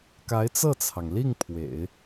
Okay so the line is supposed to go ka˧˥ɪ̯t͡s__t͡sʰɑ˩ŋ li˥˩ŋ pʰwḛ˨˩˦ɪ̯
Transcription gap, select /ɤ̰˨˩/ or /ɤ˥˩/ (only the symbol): ɤ˥˩